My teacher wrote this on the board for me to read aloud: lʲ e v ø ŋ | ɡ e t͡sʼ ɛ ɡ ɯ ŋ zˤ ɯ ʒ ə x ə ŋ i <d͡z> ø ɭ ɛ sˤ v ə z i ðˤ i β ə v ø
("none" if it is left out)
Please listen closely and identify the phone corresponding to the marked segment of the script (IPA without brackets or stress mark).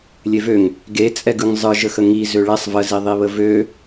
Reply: z